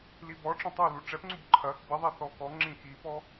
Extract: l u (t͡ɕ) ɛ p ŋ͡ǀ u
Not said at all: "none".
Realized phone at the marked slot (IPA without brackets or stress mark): ʈ͡ʂ